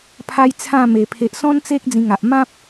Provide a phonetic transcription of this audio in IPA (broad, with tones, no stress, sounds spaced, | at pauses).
pʰ a˦ j t͡sʰ ã˥˧ m e˨˩ pʰ e˨ ʔ s ɔ̃˦ n t͡s e˦ k̚ d͡z ĩ˧ ŋ a˨ ʔ m ã˦ p̚